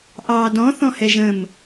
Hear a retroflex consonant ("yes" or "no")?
no